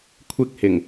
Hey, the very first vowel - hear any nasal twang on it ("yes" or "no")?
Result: no